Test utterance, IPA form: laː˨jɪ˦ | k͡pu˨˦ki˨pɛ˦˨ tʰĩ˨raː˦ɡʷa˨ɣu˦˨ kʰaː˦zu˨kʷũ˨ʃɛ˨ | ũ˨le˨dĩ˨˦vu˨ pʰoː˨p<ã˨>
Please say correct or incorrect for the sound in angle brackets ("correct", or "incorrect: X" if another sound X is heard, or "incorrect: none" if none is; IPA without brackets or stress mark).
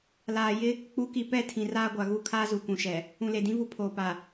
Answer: incorrect: a˨